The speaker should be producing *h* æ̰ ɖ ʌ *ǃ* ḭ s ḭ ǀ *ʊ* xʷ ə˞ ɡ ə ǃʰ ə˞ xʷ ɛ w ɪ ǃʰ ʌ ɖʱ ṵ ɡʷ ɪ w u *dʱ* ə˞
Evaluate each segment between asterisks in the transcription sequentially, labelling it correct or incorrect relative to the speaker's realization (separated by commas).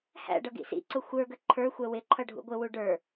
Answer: correct, incorrect, correct, incorrect